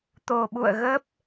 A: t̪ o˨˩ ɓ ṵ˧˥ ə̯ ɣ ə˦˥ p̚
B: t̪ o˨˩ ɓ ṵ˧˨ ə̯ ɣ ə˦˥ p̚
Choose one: B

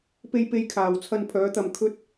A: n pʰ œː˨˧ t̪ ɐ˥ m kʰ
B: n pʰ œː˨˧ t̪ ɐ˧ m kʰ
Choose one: B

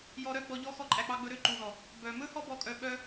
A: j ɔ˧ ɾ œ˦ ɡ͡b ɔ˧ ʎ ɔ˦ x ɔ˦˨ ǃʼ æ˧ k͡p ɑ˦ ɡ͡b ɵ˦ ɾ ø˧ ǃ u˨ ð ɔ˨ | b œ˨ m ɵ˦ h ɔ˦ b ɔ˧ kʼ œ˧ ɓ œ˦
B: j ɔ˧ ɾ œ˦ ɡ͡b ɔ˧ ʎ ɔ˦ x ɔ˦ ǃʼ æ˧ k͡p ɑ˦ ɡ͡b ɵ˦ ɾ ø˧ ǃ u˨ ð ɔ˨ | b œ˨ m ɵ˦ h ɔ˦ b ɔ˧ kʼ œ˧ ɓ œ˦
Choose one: B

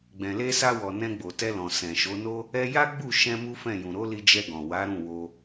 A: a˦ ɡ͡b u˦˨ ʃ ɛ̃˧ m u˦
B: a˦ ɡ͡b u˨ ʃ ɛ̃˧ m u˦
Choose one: A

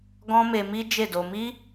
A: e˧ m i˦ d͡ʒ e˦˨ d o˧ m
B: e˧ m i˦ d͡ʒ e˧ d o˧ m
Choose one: A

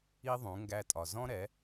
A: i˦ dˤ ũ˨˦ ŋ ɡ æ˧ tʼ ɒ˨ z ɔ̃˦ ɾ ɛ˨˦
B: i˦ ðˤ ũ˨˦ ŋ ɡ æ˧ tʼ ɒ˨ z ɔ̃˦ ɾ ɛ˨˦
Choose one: B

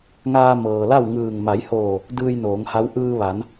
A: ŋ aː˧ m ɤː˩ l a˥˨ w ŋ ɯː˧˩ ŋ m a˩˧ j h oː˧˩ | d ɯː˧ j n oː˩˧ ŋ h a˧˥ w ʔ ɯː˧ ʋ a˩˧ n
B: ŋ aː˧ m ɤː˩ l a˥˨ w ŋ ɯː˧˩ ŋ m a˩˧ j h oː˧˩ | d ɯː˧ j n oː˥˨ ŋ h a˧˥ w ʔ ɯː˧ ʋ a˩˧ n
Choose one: A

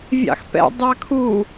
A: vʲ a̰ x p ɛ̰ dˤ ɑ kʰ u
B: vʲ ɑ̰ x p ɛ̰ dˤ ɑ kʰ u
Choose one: B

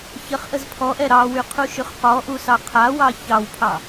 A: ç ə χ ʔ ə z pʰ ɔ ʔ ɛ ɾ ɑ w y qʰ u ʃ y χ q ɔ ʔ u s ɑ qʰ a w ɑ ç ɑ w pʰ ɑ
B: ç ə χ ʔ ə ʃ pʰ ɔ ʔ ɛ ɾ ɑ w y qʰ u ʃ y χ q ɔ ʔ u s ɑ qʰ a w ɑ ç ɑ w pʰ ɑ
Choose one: A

